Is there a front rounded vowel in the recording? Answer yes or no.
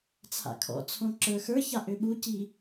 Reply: yes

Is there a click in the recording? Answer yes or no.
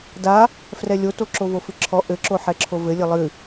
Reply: yes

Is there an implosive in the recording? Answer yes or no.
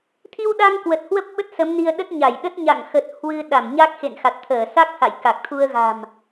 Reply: yes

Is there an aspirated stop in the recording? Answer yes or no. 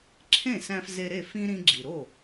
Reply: yes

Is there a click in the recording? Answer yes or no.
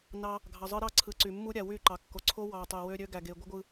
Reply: yes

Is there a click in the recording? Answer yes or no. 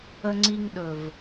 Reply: yes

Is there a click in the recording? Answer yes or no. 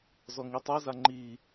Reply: yes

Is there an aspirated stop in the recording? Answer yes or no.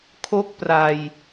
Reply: yes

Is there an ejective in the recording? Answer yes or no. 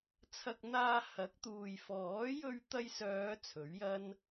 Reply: no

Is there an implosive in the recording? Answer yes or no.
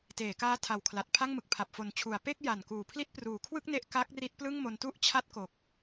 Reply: no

